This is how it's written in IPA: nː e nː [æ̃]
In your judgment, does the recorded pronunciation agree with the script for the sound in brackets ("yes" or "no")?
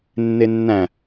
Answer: yes